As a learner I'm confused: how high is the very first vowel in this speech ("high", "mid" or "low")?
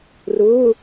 high